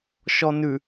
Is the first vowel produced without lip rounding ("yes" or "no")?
no